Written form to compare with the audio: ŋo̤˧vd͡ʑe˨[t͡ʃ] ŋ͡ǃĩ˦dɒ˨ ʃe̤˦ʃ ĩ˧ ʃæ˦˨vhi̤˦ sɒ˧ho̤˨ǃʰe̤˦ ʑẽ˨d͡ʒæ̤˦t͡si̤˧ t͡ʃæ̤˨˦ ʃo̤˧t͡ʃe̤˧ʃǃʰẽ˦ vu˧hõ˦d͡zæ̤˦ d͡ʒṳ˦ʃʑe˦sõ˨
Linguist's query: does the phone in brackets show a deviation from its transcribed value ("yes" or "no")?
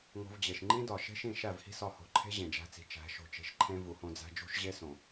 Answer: yes